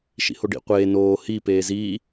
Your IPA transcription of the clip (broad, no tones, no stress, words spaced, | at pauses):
ʃḭhoɖḭ qʷeː noː hi peːziː